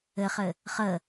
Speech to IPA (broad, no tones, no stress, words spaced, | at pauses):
ɘχɘ | χə